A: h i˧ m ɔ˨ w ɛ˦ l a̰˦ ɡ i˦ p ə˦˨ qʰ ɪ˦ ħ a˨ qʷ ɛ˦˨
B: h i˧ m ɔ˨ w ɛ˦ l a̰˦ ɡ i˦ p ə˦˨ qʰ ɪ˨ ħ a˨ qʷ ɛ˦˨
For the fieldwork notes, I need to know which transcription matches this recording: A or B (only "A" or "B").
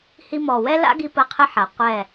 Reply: A